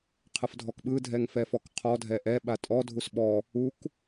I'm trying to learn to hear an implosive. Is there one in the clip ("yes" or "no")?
yes